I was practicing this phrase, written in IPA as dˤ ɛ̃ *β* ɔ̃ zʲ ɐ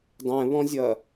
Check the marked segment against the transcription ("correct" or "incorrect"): correct